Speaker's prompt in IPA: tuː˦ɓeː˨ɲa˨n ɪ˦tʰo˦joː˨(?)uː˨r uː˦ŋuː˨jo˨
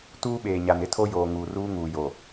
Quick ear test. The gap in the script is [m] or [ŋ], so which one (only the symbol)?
ŋ